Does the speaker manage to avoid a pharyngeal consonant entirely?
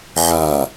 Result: no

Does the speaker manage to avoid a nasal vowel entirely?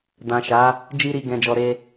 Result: no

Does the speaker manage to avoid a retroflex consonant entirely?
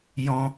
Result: yes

